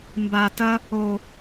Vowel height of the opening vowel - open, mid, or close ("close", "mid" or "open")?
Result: open